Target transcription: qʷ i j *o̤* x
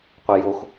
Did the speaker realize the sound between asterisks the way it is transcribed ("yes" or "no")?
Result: no